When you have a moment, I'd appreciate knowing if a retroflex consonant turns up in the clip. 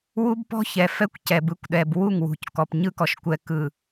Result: no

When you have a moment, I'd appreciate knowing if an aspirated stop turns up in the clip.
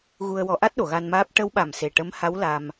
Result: no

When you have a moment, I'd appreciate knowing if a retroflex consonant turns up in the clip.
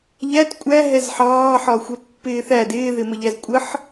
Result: no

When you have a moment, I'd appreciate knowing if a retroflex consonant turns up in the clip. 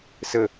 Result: no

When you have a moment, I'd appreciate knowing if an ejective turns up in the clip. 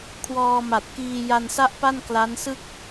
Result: no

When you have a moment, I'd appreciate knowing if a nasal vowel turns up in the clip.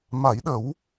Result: no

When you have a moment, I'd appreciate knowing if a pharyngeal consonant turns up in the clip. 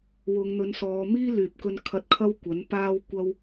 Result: no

